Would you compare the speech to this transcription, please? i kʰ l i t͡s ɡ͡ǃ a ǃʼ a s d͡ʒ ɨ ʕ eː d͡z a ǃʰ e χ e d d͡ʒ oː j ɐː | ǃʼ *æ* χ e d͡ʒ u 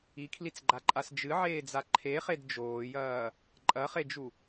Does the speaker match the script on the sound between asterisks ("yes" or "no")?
no